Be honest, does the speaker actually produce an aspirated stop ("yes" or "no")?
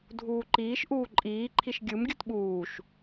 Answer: yes